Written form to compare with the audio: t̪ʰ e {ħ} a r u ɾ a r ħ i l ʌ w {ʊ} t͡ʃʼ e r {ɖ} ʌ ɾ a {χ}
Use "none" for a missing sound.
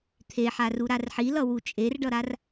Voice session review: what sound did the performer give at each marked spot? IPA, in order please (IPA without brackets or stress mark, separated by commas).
ħ, u, ɖ, r